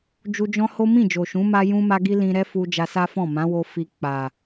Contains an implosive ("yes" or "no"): no